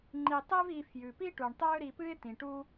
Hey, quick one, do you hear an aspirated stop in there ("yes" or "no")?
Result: no